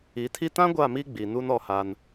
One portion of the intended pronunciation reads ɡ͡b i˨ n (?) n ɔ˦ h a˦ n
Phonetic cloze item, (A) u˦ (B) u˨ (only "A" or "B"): A